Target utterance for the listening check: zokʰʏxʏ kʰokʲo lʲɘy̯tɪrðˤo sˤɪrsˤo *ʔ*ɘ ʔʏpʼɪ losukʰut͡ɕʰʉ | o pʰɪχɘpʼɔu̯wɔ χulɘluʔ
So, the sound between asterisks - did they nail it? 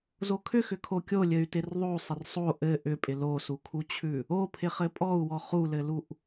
yes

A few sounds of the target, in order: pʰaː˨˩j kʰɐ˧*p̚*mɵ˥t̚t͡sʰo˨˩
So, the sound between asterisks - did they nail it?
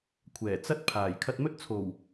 no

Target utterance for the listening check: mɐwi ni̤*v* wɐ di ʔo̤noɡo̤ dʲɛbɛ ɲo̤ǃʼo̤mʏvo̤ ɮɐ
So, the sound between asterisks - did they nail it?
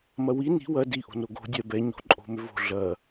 no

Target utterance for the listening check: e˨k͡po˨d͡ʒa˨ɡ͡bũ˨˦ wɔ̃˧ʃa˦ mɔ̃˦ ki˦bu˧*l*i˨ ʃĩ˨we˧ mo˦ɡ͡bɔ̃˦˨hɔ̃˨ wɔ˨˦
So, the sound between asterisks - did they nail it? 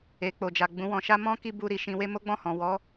no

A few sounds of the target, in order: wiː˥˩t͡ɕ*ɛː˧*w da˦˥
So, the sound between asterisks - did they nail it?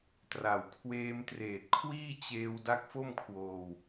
no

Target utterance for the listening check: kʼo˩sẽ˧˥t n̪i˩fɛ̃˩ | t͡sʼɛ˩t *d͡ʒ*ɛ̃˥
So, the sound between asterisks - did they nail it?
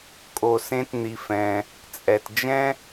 yes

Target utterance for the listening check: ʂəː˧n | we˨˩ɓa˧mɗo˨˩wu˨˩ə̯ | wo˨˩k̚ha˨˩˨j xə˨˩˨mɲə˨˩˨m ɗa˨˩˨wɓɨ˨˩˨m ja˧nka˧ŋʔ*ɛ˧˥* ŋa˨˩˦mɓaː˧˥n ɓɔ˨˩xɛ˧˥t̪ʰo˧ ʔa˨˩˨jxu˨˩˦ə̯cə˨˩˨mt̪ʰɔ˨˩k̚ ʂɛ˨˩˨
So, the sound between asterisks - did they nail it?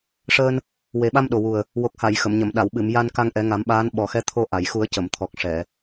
no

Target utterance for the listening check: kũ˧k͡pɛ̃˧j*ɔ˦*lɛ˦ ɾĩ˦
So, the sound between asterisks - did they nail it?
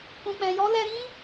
yes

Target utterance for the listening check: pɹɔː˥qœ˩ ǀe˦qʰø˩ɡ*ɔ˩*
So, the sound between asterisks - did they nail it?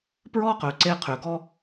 no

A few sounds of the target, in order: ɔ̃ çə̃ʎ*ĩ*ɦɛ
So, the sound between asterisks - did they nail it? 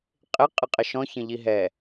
no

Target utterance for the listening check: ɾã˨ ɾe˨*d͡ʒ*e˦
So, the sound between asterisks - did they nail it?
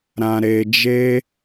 yes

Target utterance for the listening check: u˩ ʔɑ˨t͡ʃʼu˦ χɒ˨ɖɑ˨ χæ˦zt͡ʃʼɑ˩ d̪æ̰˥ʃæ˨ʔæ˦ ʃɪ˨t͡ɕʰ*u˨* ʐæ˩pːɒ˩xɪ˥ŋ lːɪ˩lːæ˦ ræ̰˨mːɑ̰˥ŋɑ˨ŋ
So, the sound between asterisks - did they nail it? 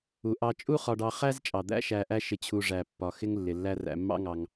yes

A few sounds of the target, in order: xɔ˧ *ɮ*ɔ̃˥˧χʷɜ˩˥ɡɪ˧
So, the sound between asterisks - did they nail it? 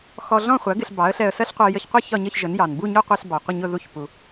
yes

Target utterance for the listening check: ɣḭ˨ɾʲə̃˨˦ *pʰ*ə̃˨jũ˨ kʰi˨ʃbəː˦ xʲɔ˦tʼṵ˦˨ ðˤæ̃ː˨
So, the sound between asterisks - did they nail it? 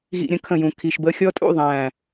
no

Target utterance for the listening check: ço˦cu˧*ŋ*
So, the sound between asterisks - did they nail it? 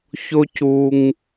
yes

